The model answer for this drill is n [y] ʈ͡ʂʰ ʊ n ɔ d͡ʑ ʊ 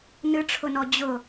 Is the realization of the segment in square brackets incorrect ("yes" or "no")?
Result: yes